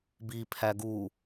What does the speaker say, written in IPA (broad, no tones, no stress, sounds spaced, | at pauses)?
b i pʰ æ ɡ u